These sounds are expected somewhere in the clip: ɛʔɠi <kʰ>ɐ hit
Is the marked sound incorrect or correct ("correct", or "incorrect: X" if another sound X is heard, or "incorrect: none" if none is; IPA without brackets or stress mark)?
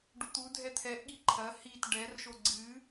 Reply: incorrect: ǃʰ